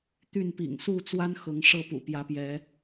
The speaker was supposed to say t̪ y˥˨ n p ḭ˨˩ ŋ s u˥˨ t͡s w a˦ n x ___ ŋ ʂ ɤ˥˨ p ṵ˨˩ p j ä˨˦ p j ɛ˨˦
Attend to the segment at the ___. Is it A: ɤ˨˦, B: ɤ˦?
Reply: A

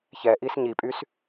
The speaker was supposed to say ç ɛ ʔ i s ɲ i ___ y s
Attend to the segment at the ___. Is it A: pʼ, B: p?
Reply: A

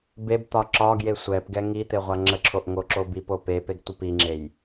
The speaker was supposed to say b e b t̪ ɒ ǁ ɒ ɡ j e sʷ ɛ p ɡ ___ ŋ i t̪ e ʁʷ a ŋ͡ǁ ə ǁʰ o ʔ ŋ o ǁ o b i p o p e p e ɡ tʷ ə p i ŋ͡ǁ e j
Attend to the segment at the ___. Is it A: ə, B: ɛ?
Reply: B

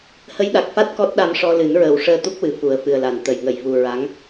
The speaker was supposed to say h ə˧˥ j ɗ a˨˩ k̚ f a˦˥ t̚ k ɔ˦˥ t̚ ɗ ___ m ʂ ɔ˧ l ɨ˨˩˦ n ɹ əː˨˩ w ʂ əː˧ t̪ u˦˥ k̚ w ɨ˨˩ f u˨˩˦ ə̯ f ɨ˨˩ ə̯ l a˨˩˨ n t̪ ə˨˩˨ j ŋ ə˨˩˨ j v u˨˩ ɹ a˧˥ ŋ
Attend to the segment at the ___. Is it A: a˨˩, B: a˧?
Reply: B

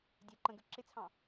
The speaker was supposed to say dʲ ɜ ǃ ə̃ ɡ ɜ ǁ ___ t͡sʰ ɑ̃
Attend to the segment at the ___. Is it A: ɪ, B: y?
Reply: A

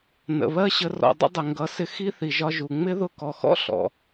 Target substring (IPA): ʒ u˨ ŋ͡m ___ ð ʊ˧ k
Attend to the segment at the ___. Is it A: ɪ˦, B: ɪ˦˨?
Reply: A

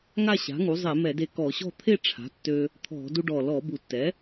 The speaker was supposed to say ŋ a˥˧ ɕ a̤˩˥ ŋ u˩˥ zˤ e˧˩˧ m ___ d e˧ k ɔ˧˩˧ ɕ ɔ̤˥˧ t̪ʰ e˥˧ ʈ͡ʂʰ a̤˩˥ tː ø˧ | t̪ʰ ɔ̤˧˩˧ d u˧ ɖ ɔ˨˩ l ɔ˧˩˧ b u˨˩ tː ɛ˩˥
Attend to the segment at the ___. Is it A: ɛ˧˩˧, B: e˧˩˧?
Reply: A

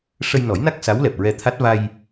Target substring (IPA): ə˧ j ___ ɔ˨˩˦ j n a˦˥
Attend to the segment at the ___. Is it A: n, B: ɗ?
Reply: A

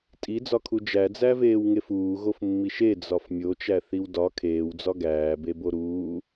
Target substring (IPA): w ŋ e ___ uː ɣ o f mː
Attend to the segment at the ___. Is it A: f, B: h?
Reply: A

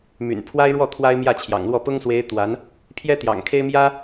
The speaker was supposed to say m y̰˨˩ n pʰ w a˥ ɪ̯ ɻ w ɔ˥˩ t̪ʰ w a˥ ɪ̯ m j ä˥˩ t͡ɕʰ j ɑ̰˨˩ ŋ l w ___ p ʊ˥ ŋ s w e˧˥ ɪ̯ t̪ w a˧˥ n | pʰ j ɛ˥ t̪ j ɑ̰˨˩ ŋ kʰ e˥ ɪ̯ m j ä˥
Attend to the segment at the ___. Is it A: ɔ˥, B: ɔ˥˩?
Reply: B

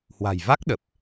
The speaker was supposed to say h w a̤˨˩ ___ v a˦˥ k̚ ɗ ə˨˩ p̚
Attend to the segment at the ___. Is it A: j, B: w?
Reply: A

